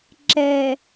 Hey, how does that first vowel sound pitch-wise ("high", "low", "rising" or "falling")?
low